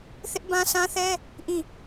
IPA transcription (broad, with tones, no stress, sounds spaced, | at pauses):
θ ɪ˦ ʔ b ã˦ sʰ ã˦ θ ɛ˦ | ʔ ĩ˦˨